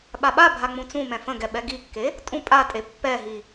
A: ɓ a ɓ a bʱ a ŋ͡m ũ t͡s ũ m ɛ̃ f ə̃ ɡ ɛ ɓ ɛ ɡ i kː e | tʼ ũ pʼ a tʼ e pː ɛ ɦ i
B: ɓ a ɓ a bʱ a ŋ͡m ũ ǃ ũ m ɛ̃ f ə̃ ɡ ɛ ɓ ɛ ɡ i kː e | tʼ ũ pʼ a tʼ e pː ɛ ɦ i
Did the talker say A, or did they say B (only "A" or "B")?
A